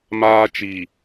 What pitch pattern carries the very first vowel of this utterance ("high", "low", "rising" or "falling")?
high